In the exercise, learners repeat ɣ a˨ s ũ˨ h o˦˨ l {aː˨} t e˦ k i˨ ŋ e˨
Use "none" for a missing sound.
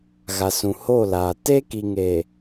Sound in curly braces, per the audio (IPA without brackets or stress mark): aː˨